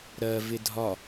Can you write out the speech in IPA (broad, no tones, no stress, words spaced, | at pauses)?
ɾɜ vɪdʱɒ